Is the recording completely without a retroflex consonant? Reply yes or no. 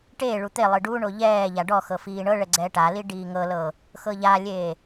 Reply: no